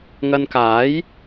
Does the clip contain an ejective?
no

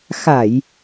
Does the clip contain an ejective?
no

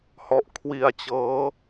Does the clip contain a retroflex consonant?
no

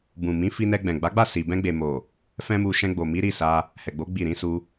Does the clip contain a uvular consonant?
no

